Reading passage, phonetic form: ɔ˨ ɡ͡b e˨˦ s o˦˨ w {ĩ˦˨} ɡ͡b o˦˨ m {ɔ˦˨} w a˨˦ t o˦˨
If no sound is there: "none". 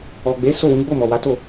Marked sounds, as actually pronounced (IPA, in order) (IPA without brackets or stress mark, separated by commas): ĩ˨˦, ɔ˨